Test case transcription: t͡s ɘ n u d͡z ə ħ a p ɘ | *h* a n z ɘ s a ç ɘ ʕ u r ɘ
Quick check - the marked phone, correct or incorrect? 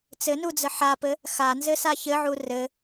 incorrect